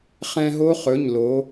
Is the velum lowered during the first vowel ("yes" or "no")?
yes